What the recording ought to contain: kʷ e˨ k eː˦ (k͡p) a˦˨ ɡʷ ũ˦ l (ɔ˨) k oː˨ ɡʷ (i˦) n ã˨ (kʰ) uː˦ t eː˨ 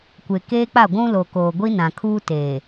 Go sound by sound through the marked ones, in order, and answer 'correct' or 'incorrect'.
correct, incorrect, correct, correct

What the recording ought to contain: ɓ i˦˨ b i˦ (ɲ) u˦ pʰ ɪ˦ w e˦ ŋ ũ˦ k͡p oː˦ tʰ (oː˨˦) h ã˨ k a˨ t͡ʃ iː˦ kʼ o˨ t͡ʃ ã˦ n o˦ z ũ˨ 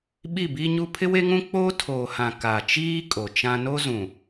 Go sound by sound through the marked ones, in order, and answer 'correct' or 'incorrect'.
correct, incorrect

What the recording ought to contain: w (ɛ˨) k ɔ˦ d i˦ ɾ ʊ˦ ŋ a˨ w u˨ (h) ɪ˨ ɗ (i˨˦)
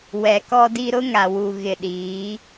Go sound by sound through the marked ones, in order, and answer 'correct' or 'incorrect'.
correct, incorrect, incorrect

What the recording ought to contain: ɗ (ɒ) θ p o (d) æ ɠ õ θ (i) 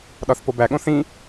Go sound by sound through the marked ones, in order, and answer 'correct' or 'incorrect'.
correct, incorrect, incorrect

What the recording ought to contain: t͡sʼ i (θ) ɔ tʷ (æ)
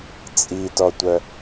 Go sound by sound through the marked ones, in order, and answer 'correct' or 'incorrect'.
incorrect, incorrect

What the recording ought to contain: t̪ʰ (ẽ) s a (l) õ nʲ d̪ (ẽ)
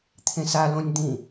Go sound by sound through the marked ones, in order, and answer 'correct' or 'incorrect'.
correct, correct, incorrect

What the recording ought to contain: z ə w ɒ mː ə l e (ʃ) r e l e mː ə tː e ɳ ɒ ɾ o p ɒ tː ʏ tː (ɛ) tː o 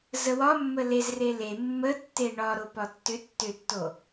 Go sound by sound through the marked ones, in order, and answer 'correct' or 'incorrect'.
incorrect, incorrect

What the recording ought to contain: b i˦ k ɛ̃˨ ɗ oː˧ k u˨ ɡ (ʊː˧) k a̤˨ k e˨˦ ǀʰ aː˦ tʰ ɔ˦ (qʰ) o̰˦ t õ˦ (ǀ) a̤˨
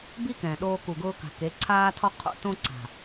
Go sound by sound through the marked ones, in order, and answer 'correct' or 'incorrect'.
correct, correct, correct

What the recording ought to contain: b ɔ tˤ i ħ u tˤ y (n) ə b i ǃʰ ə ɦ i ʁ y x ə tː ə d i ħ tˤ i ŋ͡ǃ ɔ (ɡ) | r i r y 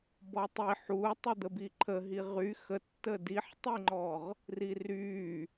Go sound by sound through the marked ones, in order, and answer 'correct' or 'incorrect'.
incorrect, incorrect

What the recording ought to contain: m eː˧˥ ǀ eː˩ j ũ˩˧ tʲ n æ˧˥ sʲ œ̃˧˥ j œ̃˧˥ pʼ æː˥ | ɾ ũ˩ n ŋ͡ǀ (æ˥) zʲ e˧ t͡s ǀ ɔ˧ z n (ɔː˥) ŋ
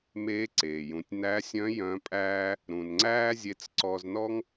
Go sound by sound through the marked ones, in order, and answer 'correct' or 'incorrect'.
incorrect, incorrect

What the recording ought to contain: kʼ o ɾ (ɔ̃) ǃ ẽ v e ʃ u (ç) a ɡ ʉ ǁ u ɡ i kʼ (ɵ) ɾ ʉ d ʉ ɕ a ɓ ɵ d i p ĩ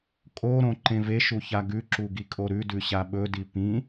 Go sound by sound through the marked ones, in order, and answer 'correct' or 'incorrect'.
incorrect, correct, incorrect

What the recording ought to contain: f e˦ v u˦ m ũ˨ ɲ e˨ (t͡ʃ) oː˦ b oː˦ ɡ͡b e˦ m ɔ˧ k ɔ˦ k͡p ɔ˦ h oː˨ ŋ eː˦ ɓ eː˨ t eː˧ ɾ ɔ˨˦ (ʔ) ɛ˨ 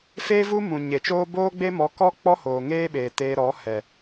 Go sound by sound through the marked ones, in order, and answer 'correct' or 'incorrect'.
correct, incorrect

